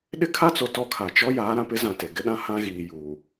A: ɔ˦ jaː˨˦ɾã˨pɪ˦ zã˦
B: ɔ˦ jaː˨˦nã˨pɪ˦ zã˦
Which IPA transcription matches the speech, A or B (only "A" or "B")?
A